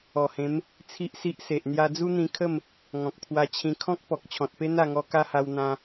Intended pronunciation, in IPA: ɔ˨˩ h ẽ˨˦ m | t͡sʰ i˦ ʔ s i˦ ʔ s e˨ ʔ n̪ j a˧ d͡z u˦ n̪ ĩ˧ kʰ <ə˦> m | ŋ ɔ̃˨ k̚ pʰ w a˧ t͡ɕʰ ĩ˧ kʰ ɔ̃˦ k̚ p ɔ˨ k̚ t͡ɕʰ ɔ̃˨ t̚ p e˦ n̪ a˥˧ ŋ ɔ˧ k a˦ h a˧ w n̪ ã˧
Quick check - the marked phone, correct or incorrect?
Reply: incorrect